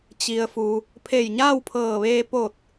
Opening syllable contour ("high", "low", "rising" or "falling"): low